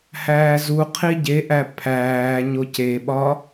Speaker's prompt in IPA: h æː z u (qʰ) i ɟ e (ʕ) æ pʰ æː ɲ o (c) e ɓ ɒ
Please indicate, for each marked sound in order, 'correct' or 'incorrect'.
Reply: correct, incorrect, correct

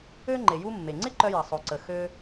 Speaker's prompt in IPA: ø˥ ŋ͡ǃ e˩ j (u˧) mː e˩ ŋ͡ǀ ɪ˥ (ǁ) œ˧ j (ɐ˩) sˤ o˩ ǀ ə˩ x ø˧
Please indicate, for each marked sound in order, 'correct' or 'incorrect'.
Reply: correct, incorrect, correct

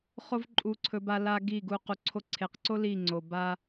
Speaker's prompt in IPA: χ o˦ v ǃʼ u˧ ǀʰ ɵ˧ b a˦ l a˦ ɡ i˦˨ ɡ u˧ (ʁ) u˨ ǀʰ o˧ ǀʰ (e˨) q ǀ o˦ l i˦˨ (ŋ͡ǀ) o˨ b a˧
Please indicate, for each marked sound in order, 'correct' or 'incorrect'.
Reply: incorrect, correct, correct

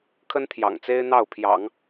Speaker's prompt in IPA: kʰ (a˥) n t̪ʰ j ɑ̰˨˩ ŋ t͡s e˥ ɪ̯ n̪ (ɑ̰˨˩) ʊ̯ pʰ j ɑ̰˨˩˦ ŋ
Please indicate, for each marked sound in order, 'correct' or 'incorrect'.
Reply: incorrect, incorrect

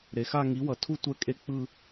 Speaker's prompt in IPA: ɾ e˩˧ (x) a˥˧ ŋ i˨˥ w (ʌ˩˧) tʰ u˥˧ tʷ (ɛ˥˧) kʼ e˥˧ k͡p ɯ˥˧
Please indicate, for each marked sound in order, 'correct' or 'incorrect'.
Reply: correct, correct, correct

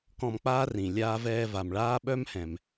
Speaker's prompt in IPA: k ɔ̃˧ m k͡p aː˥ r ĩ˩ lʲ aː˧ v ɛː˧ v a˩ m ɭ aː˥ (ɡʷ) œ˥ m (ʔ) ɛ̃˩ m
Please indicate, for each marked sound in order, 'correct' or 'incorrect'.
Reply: incorrect, incorrect

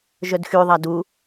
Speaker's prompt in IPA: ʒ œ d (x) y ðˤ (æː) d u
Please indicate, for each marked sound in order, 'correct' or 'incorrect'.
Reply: correct, incorrect

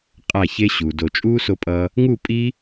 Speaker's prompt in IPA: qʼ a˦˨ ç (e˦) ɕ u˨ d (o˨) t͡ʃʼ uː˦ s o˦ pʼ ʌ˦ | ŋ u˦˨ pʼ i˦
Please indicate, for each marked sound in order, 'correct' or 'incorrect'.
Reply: correct, correct

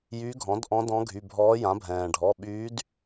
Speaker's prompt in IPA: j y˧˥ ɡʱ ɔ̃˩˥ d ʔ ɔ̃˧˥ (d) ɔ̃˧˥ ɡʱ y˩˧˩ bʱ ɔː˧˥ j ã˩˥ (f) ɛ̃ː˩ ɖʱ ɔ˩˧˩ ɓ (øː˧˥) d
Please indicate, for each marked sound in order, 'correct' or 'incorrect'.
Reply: correct, incorrect, incorrect

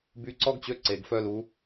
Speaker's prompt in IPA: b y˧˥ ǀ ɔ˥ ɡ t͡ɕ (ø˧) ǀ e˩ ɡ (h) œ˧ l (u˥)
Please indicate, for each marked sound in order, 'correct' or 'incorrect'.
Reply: incorrect, incorrect, incorrect

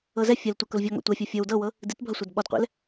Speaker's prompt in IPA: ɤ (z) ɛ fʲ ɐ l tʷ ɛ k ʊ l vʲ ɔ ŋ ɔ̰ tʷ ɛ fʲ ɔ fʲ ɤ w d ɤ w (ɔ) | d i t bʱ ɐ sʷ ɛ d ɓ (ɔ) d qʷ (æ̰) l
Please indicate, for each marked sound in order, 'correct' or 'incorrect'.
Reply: correct, incorrect, correct, incorrect

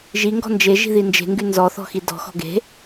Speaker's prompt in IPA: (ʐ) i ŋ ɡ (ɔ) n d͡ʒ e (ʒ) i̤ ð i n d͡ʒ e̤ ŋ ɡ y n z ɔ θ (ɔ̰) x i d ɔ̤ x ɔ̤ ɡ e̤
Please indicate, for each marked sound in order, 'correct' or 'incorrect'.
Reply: incorrect, incorrect, correct, incorrect

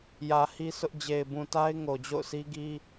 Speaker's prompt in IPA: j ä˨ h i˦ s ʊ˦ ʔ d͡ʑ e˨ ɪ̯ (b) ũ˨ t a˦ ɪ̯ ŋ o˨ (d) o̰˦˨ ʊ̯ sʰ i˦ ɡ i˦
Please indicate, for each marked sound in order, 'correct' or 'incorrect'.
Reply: correct, incorrect

